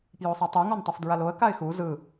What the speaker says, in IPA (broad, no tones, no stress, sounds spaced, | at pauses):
p j o sˤ e tˤ u ŋ ɔ n tˤ o f d ɹ a l o ə̯ k a ɪ̯ x u z ɯ